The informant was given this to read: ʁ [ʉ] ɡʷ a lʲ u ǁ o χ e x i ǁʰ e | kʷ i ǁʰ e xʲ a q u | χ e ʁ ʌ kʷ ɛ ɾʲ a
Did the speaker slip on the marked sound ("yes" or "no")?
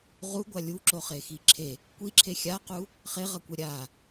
yes